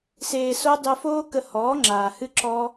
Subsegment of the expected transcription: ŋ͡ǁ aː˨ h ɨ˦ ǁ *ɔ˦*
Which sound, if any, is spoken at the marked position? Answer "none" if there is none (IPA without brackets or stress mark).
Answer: ɔ˦